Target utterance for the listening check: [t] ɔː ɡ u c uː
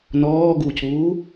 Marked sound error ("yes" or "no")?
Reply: yes